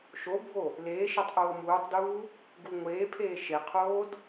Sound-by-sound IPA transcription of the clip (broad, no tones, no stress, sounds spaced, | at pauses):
ʃ o bʱ o | l eː ʃ e tˤ ʔ oː m uː tˤ d uː | ɡ u ŋʷ eː pʰ eː ʃ e qʰ oː d